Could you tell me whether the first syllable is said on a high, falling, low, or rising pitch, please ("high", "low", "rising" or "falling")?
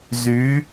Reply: rising